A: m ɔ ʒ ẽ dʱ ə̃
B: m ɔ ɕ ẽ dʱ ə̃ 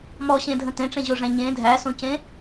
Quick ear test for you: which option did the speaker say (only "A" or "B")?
B